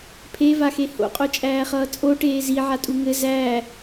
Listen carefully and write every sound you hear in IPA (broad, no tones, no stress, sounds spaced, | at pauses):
pʰ e v a x e h o̰ qʼ o t͡ʃʼ æː χ ʌː t͡sʼ o ʈ eː z i ʕ a tʼ u ŋ ɘ z æː